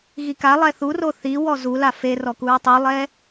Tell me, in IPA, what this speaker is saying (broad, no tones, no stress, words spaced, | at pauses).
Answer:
ɣikalˠɛ θuro θi wɔzula ferɔkuɹ tˤulˠɛ